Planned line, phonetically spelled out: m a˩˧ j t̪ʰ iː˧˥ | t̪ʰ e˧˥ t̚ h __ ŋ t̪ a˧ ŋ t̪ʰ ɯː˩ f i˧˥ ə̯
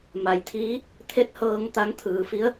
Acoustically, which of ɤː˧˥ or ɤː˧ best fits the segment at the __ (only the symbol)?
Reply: ɤː˧